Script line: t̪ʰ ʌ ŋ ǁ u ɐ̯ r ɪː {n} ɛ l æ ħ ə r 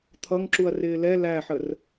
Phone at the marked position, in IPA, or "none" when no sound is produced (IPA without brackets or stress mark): l